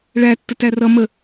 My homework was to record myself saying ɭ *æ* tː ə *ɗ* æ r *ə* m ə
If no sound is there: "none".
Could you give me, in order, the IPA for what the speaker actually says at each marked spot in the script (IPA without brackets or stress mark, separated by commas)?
æ, t, ʌ